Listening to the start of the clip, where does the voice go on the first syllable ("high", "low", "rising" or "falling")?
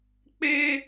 high